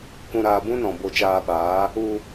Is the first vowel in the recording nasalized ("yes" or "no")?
yes